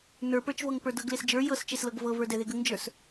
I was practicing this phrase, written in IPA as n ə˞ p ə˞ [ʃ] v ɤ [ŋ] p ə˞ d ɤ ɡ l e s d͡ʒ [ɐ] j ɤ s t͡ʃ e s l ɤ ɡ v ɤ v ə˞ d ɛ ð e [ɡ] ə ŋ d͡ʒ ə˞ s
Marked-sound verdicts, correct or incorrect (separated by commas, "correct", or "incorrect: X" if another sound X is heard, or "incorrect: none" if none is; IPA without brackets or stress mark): incorrect: t͡ʃ, correct, incorrect: ə˞, correct